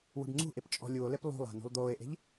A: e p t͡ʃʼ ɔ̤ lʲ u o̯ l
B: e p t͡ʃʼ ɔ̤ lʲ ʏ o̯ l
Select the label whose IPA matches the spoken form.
A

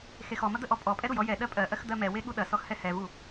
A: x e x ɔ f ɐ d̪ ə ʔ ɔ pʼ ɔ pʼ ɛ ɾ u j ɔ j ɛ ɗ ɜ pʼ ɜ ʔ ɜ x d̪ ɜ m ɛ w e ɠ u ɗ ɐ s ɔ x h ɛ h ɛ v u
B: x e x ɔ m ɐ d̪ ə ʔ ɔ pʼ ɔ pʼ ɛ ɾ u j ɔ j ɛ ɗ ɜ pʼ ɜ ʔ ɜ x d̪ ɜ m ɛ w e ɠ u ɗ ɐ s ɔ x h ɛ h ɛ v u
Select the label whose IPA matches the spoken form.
B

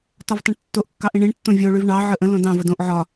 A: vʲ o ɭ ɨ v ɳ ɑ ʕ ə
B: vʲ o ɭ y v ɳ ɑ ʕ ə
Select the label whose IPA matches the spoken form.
B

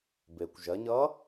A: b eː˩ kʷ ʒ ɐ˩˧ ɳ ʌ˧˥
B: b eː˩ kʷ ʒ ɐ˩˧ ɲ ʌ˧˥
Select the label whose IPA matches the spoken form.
B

